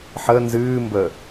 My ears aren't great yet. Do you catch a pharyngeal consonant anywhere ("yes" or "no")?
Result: yes